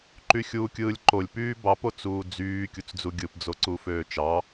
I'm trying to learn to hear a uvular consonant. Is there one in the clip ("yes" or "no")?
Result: no